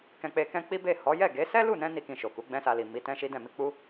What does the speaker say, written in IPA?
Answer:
k ɛ̃˧ k͡p e˧ k ɛ̃˦ k͡p i˦ b e˦˨ h ɔ˨˦ j ɛ˦˨ ɡ e˨˦ s ɛ˦ l u˦˨ n ɛ̃˧ n i˦ k ĩ˧ ʃ o˨ k u˨˦ ɡ͡b ɛ̃˦ s a˧ l i˨ m i˨˦ t ɛ̃˦ ʃ i˦ d ɛ̃˦˨ m i˧ k͡p u˦

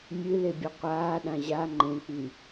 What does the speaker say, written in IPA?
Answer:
mʲ ɨ l e bʲ ʌ qʷ aː ɗ ã ʑ a ŋ͡ǃ ẽ k͡p i

